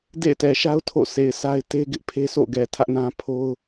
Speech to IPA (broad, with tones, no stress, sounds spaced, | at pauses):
d ḛ˦˨ ɪ̯ t ɛ˨ ʃ a˦ ʊ̯ tʰ o̰˦˨ sʰ e˨ ɪ̯ sʰ a˦ ɪ̯ t e˦ ɡ ɪ˦ ʔ pʰ e˦ sʰ o̰˦˨ ɡ ɛ˨ tʰ ä˦ ʔ n ã˦ pʰ o˦ ʊ̯